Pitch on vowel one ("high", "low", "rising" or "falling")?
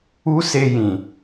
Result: high